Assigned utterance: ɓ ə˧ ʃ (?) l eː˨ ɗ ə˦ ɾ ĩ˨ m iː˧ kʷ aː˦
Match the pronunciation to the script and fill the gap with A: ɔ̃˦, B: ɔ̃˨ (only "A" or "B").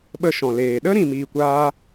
B